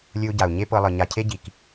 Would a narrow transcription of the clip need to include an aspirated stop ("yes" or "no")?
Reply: yes